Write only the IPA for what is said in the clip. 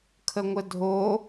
kʰ ə ŋʷ ə dʱ o

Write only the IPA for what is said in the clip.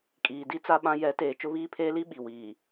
kʼ iː˨ d i˦ t͡s a˦ ɓ ã˦ j ɛ˨˦ t eː˨ t͡ʃ ʊ˦ β iː˦ pʰ eː˦ l i˦ ɓ i˨ w iː˨

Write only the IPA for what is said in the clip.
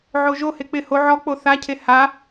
ʕ o ʒ o h e k͡p ɪ h o ʕ ɔ k͡p o θ a cʰ e h a

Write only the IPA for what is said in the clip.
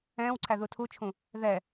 ɛ̃ː w ǀʰ æ ð u tʰ u t͡ʃʰ ũ | ð ɛ

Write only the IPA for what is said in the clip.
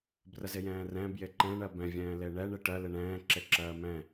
b r ə z ɪ j ɛ̃ː r ɛ̃ b j ɪ ǃ ɛ̃ ɳ ɜ b ɛ̃ vʲ ɛ̃ː l e ɳ ɛ ɳ e ʈ ɜ l ɪ ɳ ɛ̃ː ǁ e ǁ ɜː m ɛ̃

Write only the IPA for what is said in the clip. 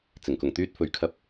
t͡s ɪ˨˩ ŋ k ʊ˨˩ ŋ t̪ yː˧ t̚ f ɵ˨ ɥ kʰ ɐ˧ p̚

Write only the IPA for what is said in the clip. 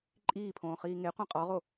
ǃʼ iː pʰ õː χ iː ŋ e qʷ ĩ qʼ ɔ ʁ o

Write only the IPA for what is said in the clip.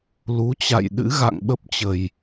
l u˨˦ t͡ɕ a̰˧˨ j ɗ ɨ̰˧˥ ɣ a̰˧˨ ŋ ɓ ə˦˥ p̚ t͡ɕ ə˨˩ j

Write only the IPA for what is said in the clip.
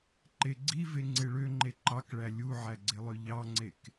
ǃ e ɡ͡ǀ i v e ŋ͡ǀ e ɭ ø ŋ͡ǃ e ǃ ɑ k ɭ æ lʲ u ʕ æ ɡ͡ǀ e lˠ ø ʎ ɑ ŋ͡ǀ e k

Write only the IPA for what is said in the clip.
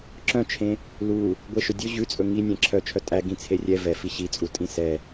ǁ œ̃ t͡ʃʰ ẽ | l u | ɡʷ e ʃ ɵ dʲ ɵ ʑ ʉ t͡sʼ ɵ ŋ i nʲ ɛ̃ ǁʰ œ t͡ʃʰ œ tʼ æ ɡ ĩ t͡sʰ e rʲ ɛ v ɛ f i ɕ i t͡sʼ u tʼ ĩ s ɛ

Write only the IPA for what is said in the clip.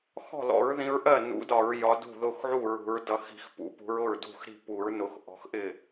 x ɔ̤˥˩ l ɔ̰˨˩˦ ɹ ð ĩ˨˦ ɹ ʔ ɜ˥˩ n ṵ˨˩˦ d ɒ˨˩˦ ɹ j ɒ˨˦ d ṳ˥˩ ð ʊ˥˩ x ʕ u˥˩ ɹ ṳ˨˩˦ ɹ d ʌ˨˦ x i̤˨˩˦ x p ṵ˨˩˦ p ṳ˨˦ ɹ ʊ˥˩ ɹ d ṳ˥˩ x ɾ i̤˥˩ p u˨˩˦ ɹ n ʊ˨˩˦ x ʔ ɔ̤˨˦ x ʔ ɪ˥˩

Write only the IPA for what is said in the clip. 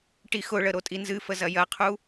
ʈ i x ʊ ɭ ə ɾ o tʼ i n z ɨ f ə z ɐ j ɐ qʰ u

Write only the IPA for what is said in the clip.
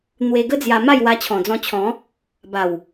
n̪ w e˧ ɡ ə˦ d͡z j a˧ m a˥˧ j w a˧ t͡ɕʰ ɔ̃˨˩ d͡z ɔ̃˧ t͡ɕʰ ɔ̃˨˦ | b a˨˩ w

